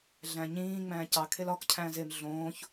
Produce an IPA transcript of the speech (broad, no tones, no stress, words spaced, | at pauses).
ɮæ̃ɲĩː ŋ͡mæ̃ːcɑ kʰelɒk cʰæ̃ːzem ɮõːç